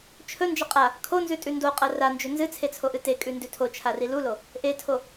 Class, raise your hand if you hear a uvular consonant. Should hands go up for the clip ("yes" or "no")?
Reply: yes